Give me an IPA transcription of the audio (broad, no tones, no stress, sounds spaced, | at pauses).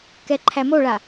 k ɛ ǃʰ æ m o ɭ a